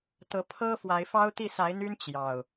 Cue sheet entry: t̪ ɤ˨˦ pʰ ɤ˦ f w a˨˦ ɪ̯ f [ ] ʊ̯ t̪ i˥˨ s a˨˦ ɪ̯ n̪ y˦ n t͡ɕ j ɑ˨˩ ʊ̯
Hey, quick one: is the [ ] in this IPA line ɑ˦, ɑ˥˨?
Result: ɑ˦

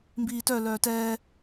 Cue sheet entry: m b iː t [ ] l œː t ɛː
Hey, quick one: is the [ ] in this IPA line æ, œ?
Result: œ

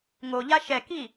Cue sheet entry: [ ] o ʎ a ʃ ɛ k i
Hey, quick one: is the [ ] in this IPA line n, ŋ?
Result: ŋ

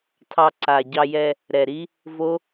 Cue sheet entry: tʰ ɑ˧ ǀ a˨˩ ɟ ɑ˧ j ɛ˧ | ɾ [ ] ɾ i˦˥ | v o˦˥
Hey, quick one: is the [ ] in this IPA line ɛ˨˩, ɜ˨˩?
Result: ɛ˨˩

